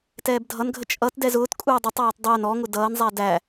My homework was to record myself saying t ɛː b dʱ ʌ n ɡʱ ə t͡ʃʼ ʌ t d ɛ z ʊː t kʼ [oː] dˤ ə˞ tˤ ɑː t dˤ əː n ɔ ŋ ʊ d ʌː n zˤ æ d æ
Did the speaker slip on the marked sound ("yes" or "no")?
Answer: yes